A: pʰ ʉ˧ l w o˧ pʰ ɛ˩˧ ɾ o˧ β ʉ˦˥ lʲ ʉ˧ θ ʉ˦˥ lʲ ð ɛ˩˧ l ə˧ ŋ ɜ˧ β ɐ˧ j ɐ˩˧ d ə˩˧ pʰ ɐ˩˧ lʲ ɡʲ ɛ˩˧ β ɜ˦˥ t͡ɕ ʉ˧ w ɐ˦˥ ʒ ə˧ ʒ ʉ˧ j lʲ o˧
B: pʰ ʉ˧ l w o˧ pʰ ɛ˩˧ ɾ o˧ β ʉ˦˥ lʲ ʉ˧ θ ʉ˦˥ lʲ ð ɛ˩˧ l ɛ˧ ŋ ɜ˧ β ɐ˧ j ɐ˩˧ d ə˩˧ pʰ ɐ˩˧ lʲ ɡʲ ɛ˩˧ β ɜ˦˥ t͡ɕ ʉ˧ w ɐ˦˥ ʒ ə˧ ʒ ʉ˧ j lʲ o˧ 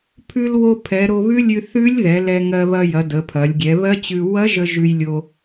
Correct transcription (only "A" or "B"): B